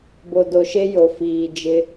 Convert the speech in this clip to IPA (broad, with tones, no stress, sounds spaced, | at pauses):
b o˨ d o˨ ʃ e˦ j o˨ f iː˨ d͡ʒ ɪ˦